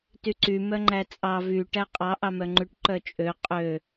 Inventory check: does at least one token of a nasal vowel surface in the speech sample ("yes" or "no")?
no